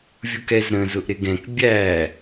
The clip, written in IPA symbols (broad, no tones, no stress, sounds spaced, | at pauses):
vʲ u k ɛ z ɾ ə̃ z ʊ ʔ ɾ ɪ ɡ ɛ̃ k bʲ æ